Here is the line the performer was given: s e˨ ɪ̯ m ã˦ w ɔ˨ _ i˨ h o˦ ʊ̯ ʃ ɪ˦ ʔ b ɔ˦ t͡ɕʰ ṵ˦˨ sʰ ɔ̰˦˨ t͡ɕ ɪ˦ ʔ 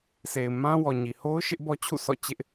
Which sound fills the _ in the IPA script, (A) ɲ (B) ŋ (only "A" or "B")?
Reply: A